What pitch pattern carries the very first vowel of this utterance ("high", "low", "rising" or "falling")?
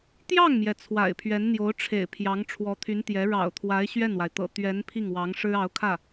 falling